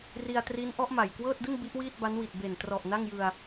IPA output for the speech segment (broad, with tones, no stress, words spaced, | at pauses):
ri˧a̯tri˦˥nʔɔ˦˥ʔ ma˨˩jkwɤː˥˩t̚dɯ˥˩ŋ bi˦˥ʔwiː˥˩t̚ba˦˥n wi˨˩t̚be˨˩ntrɔ˨˩ʔ na˥˩ŋjɯ˧a̯